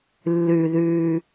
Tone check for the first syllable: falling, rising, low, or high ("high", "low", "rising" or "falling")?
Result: low